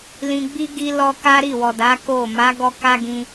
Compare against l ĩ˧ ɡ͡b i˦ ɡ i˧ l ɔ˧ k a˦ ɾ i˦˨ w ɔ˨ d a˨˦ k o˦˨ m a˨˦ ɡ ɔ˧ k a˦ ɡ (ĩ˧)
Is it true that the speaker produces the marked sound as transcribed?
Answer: yes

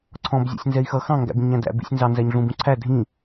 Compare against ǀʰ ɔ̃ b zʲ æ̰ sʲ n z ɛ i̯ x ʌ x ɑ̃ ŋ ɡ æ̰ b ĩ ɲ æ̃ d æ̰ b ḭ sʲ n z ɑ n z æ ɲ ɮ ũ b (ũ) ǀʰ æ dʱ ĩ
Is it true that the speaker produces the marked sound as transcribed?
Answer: yes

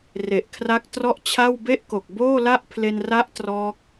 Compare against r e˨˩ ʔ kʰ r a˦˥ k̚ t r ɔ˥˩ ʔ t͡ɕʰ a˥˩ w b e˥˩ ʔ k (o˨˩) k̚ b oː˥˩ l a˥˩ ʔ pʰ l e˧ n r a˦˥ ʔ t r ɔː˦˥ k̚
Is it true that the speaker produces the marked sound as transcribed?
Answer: yes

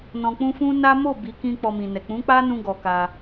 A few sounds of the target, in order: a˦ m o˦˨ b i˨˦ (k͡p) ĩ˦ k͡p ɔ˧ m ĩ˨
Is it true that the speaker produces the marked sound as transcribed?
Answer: no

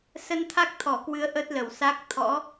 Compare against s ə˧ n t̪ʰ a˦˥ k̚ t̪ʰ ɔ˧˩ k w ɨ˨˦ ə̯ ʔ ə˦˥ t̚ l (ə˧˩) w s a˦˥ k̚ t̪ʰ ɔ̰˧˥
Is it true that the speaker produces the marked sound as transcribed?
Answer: yes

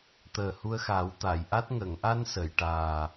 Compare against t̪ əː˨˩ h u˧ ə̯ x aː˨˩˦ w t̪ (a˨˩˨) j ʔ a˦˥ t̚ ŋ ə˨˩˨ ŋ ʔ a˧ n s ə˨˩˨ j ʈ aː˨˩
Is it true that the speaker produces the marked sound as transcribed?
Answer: yes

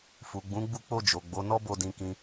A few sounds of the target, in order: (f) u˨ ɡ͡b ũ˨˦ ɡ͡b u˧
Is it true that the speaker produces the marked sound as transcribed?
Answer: yes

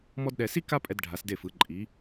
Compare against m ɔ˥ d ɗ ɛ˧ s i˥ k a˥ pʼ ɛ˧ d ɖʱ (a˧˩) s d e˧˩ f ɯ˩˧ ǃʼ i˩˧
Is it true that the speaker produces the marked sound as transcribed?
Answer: no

